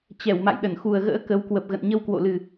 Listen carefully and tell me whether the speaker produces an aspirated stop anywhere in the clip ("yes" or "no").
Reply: no